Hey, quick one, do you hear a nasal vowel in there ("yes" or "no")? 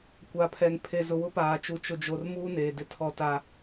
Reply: no